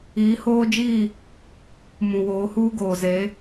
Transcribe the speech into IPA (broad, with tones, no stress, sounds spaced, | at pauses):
iː˨˦ h oː˦ d͡ʒ i˦˨ | m ũ˨ w oː˨˦ h uː˦ ɡ oː˨ z e˨˦